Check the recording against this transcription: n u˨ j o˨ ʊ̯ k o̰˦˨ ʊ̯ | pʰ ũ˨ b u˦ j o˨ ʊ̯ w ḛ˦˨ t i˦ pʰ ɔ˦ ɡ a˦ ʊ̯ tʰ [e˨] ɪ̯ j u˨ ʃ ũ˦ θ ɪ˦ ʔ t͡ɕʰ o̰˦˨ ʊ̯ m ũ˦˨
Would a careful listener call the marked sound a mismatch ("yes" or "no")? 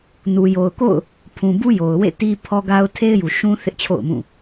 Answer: yes